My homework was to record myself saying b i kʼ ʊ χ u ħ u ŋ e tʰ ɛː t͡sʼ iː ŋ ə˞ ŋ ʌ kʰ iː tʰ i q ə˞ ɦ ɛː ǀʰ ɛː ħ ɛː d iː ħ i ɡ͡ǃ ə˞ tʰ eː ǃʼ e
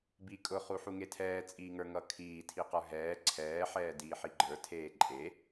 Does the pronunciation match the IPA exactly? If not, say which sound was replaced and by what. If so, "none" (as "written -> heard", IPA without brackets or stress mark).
none